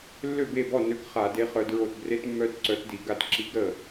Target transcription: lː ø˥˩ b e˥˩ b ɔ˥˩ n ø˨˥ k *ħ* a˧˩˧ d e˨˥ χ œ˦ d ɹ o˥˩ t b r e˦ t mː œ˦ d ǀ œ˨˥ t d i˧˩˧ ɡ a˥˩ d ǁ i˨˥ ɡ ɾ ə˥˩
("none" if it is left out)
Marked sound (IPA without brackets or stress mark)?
χ